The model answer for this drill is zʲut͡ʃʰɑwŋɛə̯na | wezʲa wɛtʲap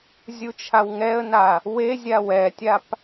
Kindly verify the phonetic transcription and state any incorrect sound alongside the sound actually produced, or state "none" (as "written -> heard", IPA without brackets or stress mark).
ɑ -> a